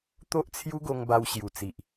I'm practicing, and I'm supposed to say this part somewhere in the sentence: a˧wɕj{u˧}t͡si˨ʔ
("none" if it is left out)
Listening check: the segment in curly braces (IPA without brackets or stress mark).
u˨˩